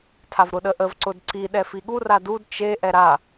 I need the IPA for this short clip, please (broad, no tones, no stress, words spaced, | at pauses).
tʰavɾʊɗəʔəv ǀʊdǀi ɗɛfiɠu radud t͡ʃe ʔɛɾa